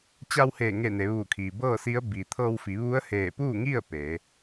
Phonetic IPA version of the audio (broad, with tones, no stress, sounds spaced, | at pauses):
t͡ɕ a˧ w h eː˧˩ ŋ e˧˩ n e˩˧ ʋ uː˧˩ kʰ iː˩ b ɤː˥˨ s i˧˥ ə̯ b i˩ t̪ʰ ɤː˧ w f i˩˧ ʋ u˧˥ ə̯ h eː˧˩ p uː˥˨ ŋ i˥˨ ə̯ p e˩˧